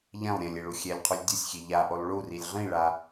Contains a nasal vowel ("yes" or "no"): yes